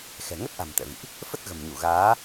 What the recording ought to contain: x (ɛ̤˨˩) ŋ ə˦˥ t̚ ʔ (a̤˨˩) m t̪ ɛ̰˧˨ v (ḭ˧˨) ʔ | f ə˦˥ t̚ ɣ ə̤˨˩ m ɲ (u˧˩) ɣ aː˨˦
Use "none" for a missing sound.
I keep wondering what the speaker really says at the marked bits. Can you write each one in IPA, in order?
ɛ̤˨˩, a̤˨˩, ḭ˧˨, u˧˩

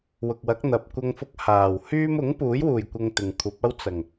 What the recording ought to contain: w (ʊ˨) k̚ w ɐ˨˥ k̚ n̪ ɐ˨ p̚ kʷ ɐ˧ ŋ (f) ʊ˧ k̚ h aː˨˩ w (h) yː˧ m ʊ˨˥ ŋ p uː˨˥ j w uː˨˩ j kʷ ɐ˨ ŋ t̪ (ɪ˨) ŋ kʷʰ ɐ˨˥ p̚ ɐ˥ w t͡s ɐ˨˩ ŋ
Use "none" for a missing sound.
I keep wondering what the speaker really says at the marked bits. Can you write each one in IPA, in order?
ʊ˨, f, h, ɪ˨

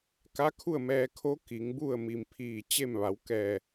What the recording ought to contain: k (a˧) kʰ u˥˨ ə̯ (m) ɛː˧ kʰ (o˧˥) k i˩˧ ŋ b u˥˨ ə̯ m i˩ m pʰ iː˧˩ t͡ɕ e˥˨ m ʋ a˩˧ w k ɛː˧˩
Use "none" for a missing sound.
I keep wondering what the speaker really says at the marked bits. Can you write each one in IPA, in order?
a˧˥, m, o˧˥

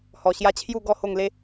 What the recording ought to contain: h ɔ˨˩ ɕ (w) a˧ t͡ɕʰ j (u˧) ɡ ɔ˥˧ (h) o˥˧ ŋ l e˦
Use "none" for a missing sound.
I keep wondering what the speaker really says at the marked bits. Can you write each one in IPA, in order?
j, u˥˧, h

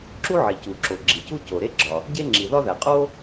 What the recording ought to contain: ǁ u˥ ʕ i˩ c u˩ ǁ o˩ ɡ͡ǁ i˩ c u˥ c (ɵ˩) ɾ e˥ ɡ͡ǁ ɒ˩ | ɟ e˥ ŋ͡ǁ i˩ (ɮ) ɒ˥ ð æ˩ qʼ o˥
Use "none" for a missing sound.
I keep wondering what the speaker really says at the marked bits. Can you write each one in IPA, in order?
o˩, ð

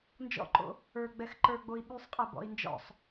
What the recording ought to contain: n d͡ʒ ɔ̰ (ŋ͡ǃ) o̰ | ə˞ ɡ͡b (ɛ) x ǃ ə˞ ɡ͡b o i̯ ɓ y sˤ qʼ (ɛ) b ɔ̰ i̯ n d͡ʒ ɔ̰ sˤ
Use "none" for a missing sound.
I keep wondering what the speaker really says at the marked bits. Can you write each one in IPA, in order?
ǃ, ɛ, ɛ

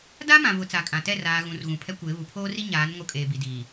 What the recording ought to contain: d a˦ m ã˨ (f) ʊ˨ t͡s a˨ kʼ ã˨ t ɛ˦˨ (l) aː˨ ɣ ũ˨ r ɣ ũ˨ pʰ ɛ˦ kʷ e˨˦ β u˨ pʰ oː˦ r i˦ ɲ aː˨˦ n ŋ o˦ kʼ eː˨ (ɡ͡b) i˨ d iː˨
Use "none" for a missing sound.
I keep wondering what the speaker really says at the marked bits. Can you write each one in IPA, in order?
v, r, b

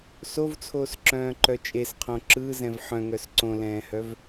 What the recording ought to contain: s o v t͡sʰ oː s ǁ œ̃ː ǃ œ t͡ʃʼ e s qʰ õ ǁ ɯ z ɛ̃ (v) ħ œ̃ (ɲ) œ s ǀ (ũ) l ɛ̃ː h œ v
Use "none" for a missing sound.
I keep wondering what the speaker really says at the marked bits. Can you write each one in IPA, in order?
v, ŋ, õ

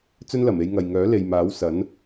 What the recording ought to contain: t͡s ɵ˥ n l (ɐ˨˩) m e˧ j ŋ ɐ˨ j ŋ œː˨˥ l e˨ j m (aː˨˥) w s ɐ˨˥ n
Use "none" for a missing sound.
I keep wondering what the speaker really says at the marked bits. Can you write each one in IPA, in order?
ɐ˨˩, aː˨˥

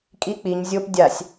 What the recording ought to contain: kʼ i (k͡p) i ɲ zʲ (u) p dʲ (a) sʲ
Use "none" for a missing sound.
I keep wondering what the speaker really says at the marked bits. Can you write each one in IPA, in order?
k͡p, o, a

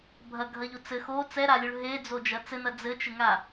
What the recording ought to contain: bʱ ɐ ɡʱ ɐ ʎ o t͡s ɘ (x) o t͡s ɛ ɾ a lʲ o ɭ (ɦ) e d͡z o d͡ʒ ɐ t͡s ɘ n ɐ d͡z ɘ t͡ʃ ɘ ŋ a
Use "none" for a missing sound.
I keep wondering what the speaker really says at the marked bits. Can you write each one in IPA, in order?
x, ɦ

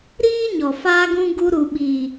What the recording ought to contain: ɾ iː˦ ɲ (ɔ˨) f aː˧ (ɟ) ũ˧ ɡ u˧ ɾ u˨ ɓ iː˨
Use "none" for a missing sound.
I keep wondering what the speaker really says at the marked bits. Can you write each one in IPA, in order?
ɔ˨, ɡ

